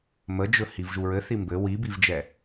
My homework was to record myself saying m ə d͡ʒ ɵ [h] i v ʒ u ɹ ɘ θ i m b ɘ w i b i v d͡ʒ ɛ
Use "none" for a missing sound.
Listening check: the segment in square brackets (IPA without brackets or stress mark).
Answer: h